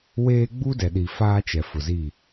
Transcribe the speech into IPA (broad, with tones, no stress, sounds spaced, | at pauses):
w eː˦ ɡ͡b u˦ d ɛ˨ ɗ i˨ f aː˦ t͡ʃ ɛ˨ f ʊ˨ z i˦˨